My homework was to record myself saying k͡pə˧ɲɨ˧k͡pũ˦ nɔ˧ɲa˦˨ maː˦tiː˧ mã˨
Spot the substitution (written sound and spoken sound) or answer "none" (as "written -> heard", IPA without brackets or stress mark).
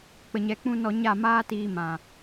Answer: ɨ˧ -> ɛ˧